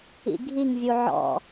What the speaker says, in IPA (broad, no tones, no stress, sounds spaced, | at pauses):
ḭ ɡʱ i ŋ vʲ u ʕ ɔ̰